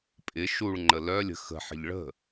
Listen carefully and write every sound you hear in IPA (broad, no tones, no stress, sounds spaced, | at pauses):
pʼ ɪ ʃ u ɭ ŋ͡ǃ ə l œ lʲ ə̤ x ə̤ ħ ə̤ ʎ ɭ ə̤